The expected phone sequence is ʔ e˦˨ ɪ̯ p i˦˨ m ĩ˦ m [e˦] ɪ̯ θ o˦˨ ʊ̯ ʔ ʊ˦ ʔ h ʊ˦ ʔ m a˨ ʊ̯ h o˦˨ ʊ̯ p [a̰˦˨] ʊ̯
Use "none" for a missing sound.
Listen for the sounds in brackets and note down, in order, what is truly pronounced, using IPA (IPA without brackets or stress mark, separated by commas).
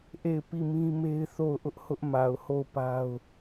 e˦, a˦